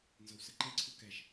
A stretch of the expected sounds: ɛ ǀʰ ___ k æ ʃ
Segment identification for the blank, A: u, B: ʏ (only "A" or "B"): A